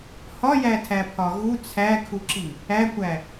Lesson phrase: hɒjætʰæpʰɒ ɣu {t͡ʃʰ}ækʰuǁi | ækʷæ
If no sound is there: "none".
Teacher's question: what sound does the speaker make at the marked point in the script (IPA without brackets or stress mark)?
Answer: t͡sʰ